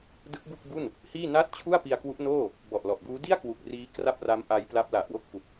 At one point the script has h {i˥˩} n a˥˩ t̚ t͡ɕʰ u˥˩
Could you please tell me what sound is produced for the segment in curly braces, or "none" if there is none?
iː˥˩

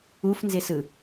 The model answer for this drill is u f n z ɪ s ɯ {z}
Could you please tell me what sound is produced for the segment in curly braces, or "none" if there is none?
none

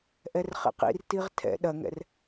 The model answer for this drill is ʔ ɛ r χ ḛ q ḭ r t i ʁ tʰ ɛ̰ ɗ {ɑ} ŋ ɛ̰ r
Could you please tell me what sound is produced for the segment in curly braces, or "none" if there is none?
ɐ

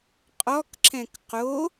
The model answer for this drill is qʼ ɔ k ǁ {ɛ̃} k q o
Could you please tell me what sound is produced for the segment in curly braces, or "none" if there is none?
ɛ̃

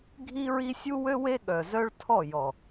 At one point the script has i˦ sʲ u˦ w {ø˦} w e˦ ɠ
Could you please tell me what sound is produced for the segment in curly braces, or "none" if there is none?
ø˦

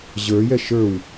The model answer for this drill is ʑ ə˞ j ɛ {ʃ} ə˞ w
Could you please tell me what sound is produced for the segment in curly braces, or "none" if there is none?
ʃ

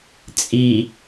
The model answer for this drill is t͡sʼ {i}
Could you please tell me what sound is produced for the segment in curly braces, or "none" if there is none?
i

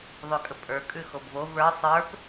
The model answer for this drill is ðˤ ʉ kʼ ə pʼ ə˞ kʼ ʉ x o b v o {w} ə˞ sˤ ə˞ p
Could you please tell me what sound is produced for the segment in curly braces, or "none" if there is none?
v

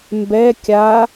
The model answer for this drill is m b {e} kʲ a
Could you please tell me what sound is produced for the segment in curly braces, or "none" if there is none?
ɛ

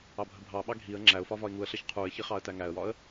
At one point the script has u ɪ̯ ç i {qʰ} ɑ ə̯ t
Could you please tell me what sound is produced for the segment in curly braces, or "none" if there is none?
χ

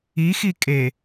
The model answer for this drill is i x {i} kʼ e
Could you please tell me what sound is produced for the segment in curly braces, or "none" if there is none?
i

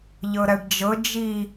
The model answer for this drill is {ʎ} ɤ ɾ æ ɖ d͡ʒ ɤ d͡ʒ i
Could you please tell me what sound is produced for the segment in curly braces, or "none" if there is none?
ʎ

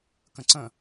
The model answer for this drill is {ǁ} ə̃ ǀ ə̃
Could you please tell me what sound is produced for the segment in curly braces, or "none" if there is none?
k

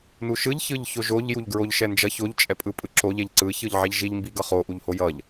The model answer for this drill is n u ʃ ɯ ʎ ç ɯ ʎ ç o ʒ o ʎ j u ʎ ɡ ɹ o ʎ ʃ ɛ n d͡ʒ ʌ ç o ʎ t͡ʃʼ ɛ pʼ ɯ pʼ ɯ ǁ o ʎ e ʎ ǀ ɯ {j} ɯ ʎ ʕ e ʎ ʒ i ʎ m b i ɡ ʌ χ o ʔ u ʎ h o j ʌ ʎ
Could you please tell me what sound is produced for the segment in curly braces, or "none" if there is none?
ç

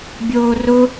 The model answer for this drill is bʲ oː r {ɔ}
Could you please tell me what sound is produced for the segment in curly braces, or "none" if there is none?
ʊ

